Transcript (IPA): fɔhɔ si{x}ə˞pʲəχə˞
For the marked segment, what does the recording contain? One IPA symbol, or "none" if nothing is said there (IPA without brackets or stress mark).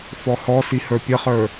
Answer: h